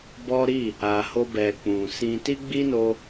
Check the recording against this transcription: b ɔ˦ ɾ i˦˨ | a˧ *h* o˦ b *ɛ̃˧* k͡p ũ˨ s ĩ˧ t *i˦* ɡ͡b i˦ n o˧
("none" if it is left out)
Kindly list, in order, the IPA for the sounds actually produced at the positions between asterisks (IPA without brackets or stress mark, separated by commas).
h, ɛ˧, i˦